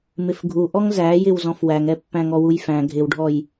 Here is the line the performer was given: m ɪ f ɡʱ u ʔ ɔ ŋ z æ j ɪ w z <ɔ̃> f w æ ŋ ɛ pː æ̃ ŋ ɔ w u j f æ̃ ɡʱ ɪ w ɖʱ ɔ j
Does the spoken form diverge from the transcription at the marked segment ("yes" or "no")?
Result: no